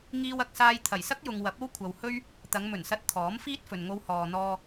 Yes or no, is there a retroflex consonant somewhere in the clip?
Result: no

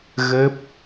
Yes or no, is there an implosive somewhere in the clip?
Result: no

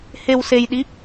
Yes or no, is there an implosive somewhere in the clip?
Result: yes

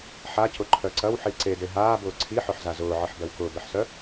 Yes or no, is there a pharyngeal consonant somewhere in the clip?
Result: yes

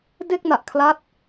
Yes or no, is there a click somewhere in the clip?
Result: no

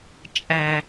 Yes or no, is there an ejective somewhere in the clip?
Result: yes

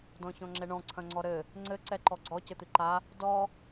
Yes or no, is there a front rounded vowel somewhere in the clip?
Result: no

